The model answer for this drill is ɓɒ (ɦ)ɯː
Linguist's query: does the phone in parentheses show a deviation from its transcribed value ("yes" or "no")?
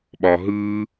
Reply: no